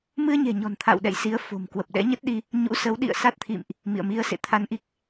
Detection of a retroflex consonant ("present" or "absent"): absent